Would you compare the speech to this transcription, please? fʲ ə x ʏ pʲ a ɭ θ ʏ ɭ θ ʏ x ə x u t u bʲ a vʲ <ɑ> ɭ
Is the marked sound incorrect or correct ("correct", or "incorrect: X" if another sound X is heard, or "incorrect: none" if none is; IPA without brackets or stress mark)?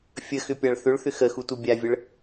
incorrect: ə